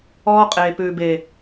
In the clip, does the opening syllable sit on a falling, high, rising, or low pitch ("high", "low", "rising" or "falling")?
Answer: high